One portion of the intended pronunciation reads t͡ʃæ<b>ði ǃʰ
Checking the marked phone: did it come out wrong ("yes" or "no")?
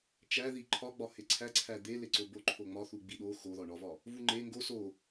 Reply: yes